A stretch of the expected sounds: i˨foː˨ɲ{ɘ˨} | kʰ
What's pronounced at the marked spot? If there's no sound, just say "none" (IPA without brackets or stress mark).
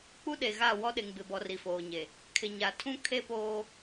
e˨